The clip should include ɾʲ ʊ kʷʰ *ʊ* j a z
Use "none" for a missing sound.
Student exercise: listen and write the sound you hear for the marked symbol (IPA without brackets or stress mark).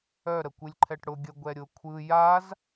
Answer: ɯ